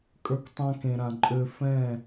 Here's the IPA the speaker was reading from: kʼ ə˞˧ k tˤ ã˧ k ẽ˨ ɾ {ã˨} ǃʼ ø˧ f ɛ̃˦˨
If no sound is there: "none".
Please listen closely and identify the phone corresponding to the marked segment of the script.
ã˨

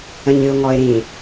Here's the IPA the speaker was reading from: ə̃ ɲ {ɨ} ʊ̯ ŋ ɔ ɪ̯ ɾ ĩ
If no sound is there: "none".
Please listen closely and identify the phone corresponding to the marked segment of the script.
ɨ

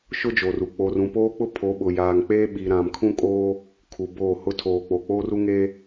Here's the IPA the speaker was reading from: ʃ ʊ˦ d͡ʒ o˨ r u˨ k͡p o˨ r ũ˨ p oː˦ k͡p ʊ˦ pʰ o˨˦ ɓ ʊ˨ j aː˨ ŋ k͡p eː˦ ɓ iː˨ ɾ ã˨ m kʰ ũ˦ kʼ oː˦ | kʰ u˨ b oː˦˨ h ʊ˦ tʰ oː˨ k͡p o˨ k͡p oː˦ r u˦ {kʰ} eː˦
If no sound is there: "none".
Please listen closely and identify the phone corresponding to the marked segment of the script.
ŋ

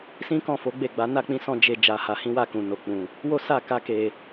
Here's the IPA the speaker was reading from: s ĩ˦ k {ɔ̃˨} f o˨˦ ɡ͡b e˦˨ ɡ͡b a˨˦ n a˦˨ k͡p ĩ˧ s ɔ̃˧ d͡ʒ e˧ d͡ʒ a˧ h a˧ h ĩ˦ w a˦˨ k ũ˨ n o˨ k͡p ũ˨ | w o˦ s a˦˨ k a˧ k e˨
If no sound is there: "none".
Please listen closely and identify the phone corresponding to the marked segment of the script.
ɔ̃˦˨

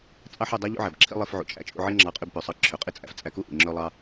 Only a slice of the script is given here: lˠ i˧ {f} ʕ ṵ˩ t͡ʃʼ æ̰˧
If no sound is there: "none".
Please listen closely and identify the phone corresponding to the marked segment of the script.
f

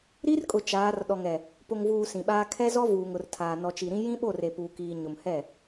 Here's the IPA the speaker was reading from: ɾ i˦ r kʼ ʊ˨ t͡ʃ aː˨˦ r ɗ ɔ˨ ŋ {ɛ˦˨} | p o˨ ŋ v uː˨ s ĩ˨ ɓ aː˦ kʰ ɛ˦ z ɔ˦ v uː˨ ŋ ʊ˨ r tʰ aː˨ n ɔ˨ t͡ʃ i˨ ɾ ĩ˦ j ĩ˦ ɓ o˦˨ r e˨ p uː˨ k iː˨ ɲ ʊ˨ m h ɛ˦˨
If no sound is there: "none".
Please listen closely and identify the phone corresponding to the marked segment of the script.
ɛ˨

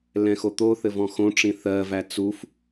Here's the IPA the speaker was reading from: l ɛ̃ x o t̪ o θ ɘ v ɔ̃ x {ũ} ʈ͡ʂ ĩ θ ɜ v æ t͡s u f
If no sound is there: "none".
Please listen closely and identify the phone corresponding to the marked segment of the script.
õ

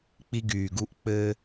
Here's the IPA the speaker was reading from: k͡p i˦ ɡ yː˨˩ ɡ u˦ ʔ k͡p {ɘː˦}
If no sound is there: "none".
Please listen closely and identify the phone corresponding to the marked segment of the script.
ɘː˦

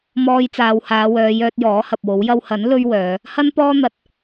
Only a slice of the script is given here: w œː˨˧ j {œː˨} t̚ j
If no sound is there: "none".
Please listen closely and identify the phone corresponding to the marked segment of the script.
œː˧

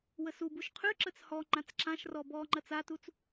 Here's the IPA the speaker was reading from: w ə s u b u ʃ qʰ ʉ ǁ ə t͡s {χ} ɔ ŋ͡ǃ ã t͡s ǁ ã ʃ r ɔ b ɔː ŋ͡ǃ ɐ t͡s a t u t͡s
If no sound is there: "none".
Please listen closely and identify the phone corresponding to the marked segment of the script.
h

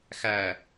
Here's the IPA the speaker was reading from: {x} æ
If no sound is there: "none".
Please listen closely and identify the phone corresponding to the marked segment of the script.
x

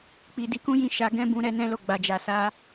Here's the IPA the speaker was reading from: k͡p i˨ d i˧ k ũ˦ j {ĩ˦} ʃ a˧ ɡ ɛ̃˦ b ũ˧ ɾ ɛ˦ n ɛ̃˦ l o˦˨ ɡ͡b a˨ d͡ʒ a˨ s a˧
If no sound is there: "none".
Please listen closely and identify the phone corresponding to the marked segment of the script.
ĩ˧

